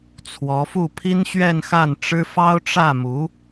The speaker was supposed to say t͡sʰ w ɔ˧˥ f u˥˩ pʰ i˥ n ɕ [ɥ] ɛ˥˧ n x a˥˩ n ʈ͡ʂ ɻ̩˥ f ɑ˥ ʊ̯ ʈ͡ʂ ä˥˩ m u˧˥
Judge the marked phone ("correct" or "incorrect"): correct